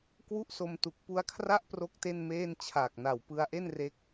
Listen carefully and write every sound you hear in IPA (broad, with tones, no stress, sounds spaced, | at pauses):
k w u˥˩ ʔ s o˧ m t u˨˩ k̚ p u˧ a̯ kʰ r a˥˩ ʔ p r o˥˩ k̚ t e˥˩ n m eː˥˩ n t͡ɕʰ aː˨˩ k̚ n a˨˩ w p ɯ˧ a̯ ʔ e˥˩ n r e˦˥ k̚